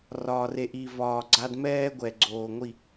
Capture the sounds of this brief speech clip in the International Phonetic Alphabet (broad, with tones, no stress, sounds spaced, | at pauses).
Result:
r ɒː˨ r e˨ ʔ i˨ v ɒː˨ ɡ͡ǀ a˦ d m ɛː˦ ɡʷ ɛ˨ ɡ͡ǀ oː˨ ŋʷ i˦˨